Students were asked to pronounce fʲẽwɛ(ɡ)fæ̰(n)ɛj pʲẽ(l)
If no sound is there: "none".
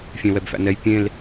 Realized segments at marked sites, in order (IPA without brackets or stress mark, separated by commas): b, n, l